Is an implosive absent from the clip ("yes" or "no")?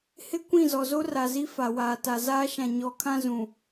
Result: yes